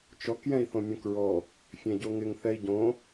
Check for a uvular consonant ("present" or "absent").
absent